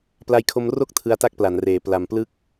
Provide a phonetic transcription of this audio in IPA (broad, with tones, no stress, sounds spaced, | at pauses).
p l a˧ j kʰ o˧ m r o˦˥ k̚ tʰ ɯ˧ a̯ t a˥˩ k̚ p l a˩˦ n r eː˩˦ p l a˨˩ m p l ɯ˥˩ k̚